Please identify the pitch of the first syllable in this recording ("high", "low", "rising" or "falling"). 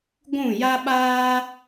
falling